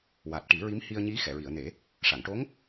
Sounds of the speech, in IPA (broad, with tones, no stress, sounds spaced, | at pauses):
w a˨˩ t̚ ʈ i˨˩˦ ɹ i˧˥ m h i˧ ə̯ ɲ i˧˥ x ɛ˨˩˨ ɹ i˨˩˨ ə̯ n e˨˩˦ | ʂ a˨˩˨ ŋ ʈ o˧˥ ŋ